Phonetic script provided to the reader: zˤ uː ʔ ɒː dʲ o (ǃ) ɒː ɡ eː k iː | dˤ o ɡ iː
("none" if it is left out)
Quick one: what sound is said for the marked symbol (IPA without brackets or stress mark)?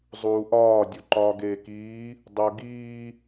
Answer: ǃ